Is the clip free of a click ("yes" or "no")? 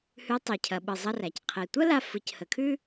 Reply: yes